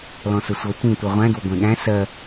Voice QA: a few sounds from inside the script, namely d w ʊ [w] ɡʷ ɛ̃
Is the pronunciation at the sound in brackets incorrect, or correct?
incorrect